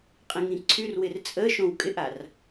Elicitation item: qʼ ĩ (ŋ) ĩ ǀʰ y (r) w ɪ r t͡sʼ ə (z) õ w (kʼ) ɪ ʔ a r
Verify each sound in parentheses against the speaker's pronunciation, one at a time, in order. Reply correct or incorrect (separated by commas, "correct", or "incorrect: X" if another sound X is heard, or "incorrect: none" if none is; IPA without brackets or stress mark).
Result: correct, correct, incorrect: ʃ, correct